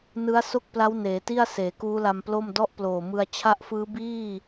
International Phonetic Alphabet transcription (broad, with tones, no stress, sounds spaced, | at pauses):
n ɯ˦˥ a̯ s o˥˩ k̚ p l a˦˥ w n eː˩˦ t i˥˩ a̯ s eː˩˦ k uː˦˥ l a˧ m p l o˥˩ m d ɔ˥˩ ʔ p l oː˨˩ m ɯ˧ a̯ t͡ɕʰ a˦˥ ʔ f ɯː˦˥ b iː˥˩